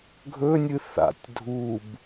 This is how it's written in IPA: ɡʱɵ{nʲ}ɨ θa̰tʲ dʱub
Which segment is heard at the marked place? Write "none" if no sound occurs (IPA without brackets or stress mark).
nʲ